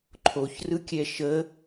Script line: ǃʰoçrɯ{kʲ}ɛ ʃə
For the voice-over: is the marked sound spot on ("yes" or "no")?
yes